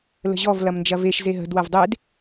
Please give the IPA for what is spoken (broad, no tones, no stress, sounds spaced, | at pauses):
l ə̤ ʑ ɔ v l ɐ m n d͡ʒ ɐ v e ʃ z e ɦ ə̤ d w ɐ v dˤ e d